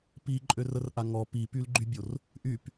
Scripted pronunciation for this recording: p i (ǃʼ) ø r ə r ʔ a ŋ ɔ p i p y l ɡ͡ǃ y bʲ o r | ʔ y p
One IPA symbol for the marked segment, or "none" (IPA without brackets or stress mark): ǃʼ